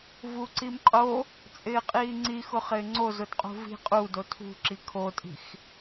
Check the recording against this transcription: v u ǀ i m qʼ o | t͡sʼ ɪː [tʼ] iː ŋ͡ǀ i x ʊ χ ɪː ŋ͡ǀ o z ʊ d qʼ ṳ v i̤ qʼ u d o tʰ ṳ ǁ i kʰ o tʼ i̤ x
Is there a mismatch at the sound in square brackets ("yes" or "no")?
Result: yes